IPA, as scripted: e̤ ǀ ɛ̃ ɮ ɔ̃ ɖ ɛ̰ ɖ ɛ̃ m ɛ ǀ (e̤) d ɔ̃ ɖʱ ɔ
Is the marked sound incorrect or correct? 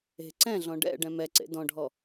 incorrect